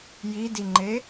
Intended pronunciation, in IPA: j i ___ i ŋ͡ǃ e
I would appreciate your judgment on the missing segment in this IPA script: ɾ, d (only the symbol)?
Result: d